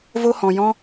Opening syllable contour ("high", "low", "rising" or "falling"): high